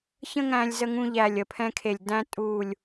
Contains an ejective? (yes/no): yes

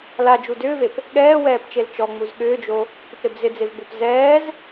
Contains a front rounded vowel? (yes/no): yes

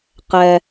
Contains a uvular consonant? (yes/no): yes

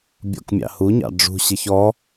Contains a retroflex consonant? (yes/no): yes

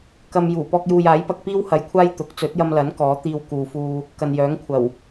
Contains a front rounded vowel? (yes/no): yes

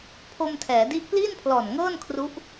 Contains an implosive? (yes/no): no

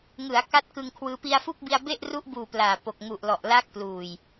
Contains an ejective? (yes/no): no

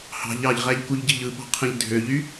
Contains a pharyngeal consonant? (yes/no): no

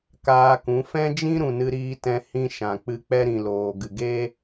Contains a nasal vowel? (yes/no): yes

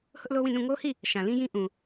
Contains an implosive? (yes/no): no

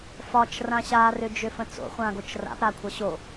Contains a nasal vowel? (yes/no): yes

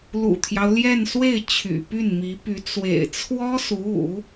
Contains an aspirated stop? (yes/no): yes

